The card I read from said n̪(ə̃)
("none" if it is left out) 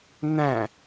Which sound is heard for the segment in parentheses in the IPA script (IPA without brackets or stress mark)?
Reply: æ̃